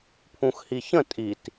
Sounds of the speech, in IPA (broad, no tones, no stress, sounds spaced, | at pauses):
pʰ ũ x h i ç ə̃ tʼ i t